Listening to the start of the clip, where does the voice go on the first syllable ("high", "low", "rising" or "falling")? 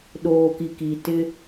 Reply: low